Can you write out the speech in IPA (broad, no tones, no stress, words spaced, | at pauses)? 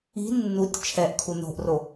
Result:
i̤ nːutʲ t͡ʃʰɛʔkʰu no̤ʔro